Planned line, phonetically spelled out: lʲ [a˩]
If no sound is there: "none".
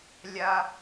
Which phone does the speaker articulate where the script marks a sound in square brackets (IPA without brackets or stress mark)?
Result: a˧